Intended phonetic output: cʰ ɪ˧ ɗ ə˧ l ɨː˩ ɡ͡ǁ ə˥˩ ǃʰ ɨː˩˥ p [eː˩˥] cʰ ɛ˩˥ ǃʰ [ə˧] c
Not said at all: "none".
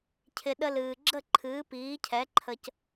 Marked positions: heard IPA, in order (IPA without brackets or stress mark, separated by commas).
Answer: iː˩˥, ə˧